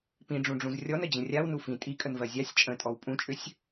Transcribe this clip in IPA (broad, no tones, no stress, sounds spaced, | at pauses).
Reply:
p ĩ ɖ͡ʐ ũ ɖ͡ʐ ũ z rʲ ɔ n ə d͡ʑ ə̃ rʲ a w n u f ĩ tʼ i kʼ ə n v ɜ zʲ a sʲ t͡ʃʼ ə̃ tʼ ɔ w pʼ ũ t͡ʃʼ ʏ sʲ